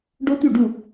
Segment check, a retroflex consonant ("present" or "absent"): present